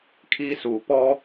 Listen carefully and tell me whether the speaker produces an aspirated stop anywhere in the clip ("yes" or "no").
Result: yes